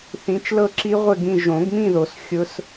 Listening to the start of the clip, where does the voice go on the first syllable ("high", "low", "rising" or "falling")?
rising